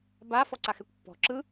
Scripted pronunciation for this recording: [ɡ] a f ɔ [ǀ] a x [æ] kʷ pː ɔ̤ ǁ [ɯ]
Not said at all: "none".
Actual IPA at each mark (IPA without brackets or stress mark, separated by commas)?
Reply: b, ǀ, ɛ, ɯ